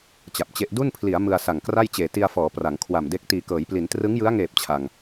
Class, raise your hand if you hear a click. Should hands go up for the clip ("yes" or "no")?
no